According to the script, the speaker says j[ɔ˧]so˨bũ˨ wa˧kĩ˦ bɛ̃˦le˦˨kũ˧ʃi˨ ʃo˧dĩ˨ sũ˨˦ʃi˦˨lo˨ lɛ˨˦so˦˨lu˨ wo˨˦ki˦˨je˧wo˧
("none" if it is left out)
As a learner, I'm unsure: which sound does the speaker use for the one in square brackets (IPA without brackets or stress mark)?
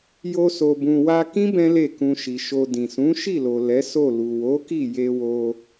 o˧